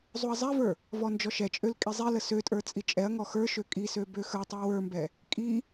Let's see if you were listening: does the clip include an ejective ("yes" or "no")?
yes